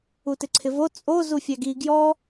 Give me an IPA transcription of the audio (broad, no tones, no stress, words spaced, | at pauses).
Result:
utɪǀʰɪvo t͡sʼo zufʲaɡi ɡjɔ